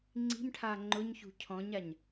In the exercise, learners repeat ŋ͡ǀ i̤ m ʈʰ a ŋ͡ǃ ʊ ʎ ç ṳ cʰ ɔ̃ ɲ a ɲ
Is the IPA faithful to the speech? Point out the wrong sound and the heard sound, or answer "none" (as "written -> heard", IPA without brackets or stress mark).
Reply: ʎ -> ɲ